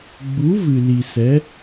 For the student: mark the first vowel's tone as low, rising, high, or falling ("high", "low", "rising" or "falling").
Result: rising